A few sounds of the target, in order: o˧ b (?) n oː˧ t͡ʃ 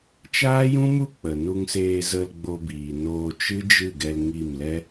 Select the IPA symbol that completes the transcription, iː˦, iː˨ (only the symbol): iː˨